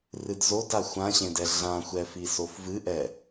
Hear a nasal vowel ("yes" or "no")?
yes